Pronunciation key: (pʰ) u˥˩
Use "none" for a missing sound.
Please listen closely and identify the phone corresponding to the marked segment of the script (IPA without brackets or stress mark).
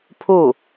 pʰ